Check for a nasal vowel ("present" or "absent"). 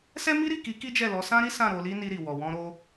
present